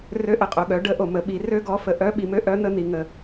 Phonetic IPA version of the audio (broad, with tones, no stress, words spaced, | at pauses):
rø˧˥ʔə˩qʼo˩ɠœ˩˧ ɖə˧˥ʔo˩ mə˩˧ɓi˩˧ rø˥ɡɔ˧˥ fə˩ʔœ˧˥ɓi˩mø˥ ʔœ˧˥n̪ə˧ n̪i˩ŋə˩